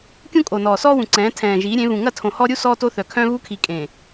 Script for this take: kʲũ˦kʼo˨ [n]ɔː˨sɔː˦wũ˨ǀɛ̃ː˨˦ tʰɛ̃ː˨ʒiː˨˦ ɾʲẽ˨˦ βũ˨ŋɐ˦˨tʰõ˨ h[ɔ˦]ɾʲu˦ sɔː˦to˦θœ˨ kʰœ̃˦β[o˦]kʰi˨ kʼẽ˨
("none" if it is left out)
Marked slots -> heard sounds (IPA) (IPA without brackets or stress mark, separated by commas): n, ɔ˦, u˦